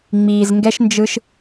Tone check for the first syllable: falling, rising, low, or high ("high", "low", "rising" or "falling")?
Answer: low